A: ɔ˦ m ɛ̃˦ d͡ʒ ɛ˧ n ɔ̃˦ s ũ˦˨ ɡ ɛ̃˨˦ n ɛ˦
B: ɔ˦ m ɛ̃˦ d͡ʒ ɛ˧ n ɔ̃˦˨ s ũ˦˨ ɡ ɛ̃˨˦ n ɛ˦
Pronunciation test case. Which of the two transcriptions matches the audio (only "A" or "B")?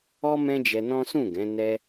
A